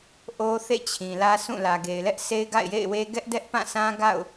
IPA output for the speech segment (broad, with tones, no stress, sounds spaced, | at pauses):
ʔ o˦ θ ḛ˦˨ t͡ɕʰ ĩ˨ l ä˦ sʰ ũ˦˨ l ä˨ ɡ e˨ ɪ̯ l ɛ˦ ʔ sʰ e˦ ɪ̯ ɡ a̰˦˨ ɪ̯ j ḛ˦˨ ɪ̯ w e˦ ɡ ɛ˦ ʔ d ɛ˦ ʔ p ã˦˨ sʰ ã˦ ɡ a̰˦˨ ʊ̯